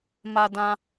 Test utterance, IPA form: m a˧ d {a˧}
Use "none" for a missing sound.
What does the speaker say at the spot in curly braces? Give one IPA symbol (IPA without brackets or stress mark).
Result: ã˧